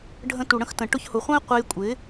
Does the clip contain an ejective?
yes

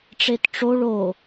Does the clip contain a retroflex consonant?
yes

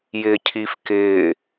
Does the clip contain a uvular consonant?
no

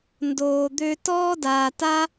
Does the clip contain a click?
no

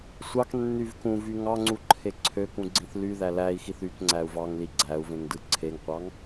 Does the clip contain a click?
yes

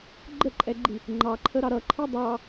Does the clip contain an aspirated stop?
yes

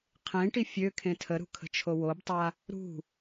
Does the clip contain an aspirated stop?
yes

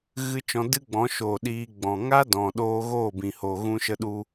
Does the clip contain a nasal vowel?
yes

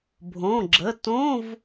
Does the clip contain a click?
yes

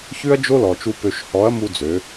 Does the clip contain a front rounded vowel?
yes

